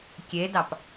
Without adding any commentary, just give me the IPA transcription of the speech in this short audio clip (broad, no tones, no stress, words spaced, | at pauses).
kʲedɑp